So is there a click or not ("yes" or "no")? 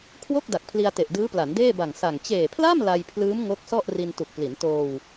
no